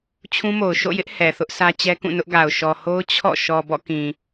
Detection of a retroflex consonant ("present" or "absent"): absent